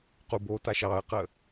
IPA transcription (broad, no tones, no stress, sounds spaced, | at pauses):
q u b o t a ʃ ɑ ə̯ q ə